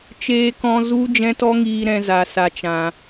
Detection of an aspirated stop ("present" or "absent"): absent